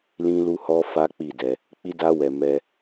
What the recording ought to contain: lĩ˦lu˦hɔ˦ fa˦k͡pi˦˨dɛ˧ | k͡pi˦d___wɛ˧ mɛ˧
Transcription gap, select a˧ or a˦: a˦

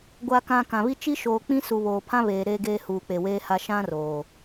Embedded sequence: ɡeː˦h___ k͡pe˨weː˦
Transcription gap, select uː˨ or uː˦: uː˨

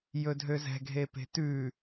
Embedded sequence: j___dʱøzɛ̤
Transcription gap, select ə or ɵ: ɵ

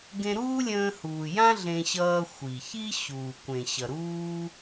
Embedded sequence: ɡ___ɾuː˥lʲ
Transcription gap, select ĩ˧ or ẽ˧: ẽ˧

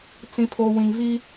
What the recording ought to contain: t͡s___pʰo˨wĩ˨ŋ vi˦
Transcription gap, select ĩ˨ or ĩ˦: ĩ˨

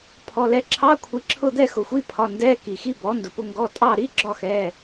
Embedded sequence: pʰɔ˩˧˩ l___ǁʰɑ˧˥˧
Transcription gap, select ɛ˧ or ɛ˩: ɛ˧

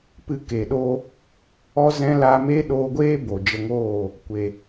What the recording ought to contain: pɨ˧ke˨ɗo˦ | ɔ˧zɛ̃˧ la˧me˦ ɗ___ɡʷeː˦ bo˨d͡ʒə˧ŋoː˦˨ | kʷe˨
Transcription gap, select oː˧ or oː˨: oː˧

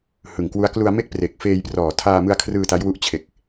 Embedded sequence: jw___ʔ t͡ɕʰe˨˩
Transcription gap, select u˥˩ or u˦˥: u˦˥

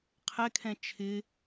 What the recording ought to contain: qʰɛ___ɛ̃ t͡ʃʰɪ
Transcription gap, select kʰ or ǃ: kʰ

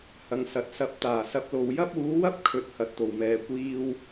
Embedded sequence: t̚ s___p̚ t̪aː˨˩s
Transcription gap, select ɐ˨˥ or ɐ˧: ɐ˨˥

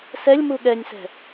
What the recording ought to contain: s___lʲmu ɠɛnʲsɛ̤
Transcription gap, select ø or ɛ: ɛ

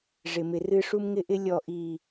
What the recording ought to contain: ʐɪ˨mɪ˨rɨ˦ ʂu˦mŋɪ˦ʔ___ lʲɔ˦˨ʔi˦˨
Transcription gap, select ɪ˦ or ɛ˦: ɪ˦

